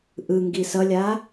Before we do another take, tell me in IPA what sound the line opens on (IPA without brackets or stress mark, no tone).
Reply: ʔ